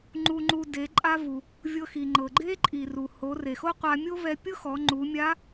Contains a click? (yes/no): yes